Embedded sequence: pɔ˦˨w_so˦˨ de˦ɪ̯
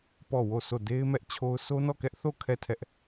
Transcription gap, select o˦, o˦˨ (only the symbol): o˦˨